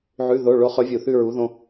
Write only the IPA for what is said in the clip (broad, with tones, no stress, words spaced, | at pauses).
ʕʉ˧˥˧ðo˧˥˧ ɭo˧˥χɵ˧˥vʲu˧˩ θʉ˥˧ɹu˧˥ ðõ˥